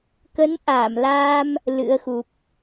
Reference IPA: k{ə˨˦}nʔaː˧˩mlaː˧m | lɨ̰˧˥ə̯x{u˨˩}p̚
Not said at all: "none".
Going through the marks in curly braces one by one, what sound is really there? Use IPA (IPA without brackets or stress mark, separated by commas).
ə˨˦, u˨˩